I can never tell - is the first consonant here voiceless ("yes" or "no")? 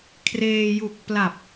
yes